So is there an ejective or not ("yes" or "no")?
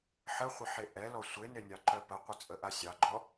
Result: yes